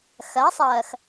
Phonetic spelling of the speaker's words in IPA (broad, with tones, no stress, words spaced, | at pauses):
xɜ˨˦sˤɜː˨x